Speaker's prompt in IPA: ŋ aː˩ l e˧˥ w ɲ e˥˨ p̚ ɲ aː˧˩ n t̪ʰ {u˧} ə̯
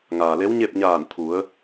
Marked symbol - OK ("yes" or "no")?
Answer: no